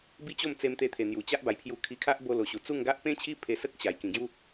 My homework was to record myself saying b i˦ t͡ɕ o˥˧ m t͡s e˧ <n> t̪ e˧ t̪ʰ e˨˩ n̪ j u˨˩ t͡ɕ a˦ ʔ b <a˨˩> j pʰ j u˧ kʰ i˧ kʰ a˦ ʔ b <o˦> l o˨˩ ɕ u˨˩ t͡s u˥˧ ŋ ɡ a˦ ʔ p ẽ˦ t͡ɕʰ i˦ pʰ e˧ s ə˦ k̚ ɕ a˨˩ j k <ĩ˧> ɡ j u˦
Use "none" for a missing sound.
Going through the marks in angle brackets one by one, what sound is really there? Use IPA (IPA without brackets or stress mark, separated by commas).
m, a˨˩, o˧, ĩ˨˩